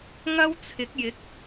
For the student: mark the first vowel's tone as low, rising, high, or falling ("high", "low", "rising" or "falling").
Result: high